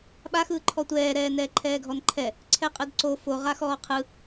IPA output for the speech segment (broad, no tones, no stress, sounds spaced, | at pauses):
ɓ a x ɯː ǃʰ ɔ tʷ ɛː ɾ ɛː n ɛː ǃʰ ɛː ɡʱ ɔ n ǃʰ ɛ | ǀʰ ɛ qʼ ɯ d ǀ o f o ʁ a x ɔː qʰ ɯ